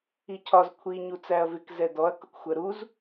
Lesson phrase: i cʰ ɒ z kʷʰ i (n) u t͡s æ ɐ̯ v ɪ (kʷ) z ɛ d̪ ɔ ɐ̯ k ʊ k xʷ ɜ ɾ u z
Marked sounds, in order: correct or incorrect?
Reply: incorrect: ɲ, incorrect: k

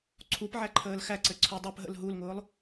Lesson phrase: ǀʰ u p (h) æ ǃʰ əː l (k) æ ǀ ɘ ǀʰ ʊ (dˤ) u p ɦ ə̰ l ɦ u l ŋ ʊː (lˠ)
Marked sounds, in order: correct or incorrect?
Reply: incorrect: ʕ, incorrect: x, correct, correct

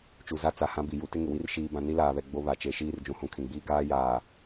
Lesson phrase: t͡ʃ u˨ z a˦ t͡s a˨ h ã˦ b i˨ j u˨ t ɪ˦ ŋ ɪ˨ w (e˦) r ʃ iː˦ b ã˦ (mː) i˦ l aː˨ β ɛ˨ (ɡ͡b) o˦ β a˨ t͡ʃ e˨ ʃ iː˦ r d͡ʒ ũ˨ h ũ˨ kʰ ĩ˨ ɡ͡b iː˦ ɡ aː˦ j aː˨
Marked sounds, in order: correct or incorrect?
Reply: incorrect: i˦, incorrect: n, correct

